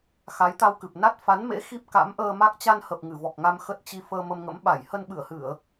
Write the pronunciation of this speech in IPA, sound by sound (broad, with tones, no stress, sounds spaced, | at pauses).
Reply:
x a˨˦ j t̪ a˧ w k ɨ˨˩ p̚ n a˦˥ t̚ f a˨˦ n m ḛ˧˥ x i˦˥ p̚ k a̰˧˥ m ʔ əː˧ m a˦˥ k̚ t͡ɕ a˧ n h ə˨˩ p̚ ŋ ɨ˧˩ v ɔ˨˩ k̚ ŋ a˧ m x ə˦˥ t̚ t͡ɕ i˧ f əː˧ m ə˧ m ŋ ə̰˧˥ m ɓ a˧˩ j h ə˧ n ɓ ɨ˧˩ ə̯ h ɨ˧˩˨ ə̯